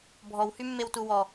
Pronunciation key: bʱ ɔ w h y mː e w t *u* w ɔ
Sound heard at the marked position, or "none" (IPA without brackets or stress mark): u